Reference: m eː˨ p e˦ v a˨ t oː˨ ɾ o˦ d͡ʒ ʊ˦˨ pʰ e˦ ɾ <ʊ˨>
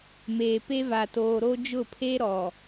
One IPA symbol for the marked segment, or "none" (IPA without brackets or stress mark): ɔ˨